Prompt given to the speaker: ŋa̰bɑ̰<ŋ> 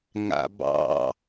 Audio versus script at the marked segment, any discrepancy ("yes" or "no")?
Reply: yes